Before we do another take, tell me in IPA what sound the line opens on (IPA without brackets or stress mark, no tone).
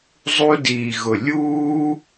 zˤ